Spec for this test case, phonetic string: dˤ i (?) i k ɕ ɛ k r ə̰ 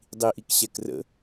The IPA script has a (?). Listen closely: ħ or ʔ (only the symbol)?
ʔ